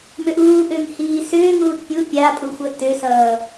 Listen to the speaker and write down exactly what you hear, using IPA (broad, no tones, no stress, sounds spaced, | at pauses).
m ʏ ʔ uː ʔ ʏː ŋ h iː s ʏː ŋ uː t pʲ u pʲ a pʼ u xʷ ʌ t ʏ s ʌː